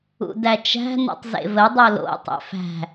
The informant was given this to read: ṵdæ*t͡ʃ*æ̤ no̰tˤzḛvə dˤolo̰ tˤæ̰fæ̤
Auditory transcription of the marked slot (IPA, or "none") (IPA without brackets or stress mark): t͡ʃ